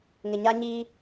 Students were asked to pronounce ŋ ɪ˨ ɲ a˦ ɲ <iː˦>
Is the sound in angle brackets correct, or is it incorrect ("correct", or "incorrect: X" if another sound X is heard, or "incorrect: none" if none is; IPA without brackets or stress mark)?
correct